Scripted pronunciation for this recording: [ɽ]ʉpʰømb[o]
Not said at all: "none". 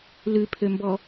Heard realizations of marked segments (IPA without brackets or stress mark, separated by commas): l, ɔ